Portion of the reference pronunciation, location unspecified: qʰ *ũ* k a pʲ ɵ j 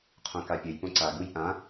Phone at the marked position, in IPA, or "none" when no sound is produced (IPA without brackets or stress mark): õ